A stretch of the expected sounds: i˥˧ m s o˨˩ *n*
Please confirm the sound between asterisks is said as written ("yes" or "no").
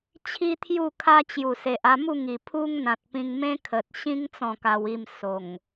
no